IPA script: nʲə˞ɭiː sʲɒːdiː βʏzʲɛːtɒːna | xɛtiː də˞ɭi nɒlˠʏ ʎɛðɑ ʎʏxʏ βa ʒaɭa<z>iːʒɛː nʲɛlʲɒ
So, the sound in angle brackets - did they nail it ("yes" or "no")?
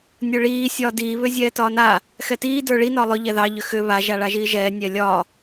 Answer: no